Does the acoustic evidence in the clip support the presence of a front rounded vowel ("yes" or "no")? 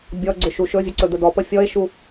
yes